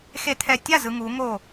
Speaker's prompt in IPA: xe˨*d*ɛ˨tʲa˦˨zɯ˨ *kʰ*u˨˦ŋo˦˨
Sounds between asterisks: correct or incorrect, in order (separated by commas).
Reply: incorrect, incorrect